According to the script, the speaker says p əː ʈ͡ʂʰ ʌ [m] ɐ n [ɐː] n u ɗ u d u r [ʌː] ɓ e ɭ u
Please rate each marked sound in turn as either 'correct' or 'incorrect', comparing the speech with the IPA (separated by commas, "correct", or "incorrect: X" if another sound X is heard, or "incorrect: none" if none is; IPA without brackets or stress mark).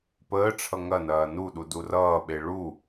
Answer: incorrect: ŋ, correct, correct